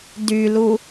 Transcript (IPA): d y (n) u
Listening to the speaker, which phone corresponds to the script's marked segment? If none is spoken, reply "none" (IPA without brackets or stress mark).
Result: l